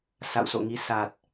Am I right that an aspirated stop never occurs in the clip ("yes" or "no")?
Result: yes